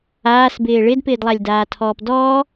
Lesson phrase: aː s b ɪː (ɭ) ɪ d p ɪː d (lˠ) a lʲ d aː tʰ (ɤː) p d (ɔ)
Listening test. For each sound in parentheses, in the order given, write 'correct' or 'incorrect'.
correct, correct, incorrect, incorrect

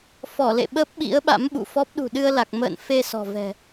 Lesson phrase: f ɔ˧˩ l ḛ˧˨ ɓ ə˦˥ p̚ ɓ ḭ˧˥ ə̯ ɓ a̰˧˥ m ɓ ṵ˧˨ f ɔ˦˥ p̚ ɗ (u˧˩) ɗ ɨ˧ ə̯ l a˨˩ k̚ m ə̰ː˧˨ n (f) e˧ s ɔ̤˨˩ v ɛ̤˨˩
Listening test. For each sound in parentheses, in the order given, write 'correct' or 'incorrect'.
incorrect, correct

